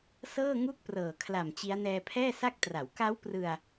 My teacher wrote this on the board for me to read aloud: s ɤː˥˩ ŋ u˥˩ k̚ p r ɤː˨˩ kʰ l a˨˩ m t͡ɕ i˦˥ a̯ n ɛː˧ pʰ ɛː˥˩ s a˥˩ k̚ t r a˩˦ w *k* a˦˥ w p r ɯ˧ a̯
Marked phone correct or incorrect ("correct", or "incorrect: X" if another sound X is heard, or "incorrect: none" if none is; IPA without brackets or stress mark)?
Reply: correct